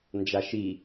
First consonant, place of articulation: alveolar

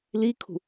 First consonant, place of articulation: alveolar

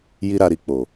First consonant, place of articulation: palatal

